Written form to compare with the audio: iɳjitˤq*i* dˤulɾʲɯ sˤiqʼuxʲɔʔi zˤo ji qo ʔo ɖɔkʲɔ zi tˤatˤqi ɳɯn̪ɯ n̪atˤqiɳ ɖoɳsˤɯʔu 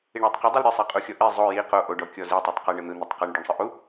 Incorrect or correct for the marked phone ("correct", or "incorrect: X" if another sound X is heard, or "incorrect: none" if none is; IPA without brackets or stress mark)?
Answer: correct